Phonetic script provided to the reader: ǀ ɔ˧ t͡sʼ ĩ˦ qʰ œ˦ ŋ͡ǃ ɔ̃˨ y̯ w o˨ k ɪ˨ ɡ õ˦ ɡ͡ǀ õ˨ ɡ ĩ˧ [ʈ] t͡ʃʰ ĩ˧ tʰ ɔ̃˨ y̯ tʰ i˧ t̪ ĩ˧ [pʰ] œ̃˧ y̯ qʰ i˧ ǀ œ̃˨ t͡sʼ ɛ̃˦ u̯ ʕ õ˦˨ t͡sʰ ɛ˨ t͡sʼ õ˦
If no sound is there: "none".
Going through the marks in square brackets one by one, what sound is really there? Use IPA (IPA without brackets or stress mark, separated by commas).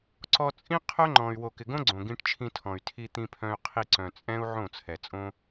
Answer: ʈ, pʰ